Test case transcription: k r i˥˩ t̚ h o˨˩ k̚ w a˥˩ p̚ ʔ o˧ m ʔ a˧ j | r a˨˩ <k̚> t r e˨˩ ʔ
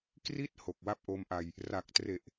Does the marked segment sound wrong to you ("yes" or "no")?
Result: no